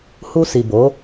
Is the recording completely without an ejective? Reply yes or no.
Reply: yes